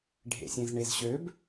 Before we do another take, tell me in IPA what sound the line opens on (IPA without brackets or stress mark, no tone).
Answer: ɖʱ